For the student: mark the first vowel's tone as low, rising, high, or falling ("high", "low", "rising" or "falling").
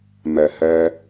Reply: low